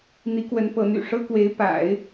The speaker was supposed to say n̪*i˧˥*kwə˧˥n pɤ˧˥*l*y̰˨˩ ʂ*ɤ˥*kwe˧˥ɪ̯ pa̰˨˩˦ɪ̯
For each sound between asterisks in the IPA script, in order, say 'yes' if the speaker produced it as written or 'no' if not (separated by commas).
yes, no, yes